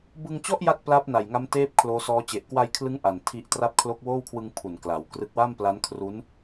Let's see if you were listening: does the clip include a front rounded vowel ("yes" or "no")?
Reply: no